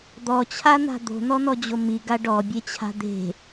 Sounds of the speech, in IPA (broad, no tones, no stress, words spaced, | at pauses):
d̪ɔt͡ɕʰan̪a̤ d̪o̤n̪ɔn̪ɔd͡ʑo miɡa ɖɔbʲet͡ɕʰa̤ d̪e̤